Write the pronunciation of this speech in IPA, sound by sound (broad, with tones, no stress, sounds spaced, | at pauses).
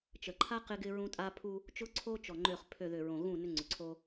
t͡ʃ ə˨ ǃʰ a˦ q ɪ˦ ɡ ɪ˦ ɹ ũ˦ tʼ a˦ pʰ u˦ | t͡ʃ ʊ˦ ǀʰ o˦ t͡ʃ ɔ˨ ŋ͡ǃ ø˨ χ pʰ ø˨ ð ʏ˨ ɹ õ˨ ɣ ũ˦˨ n ʏ˦ ŋ͡ǀ ʏ˨ ǀʰ o˦